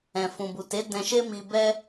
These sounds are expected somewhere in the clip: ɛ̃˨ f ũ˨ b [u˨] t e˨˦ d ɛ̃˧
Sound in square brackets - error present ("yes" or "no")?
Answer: no